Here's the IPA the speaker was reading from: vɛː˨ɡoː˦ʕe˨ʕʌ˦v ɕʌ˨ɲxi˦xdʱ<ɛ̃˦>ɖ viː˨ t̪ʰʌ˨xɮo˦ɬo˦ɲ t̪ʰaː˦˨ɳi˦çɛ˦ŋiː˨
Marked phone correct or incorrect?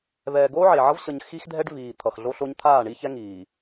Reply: incorrect